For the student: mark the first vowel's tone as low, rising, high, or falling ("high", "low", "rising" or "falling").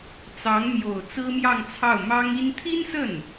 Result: rising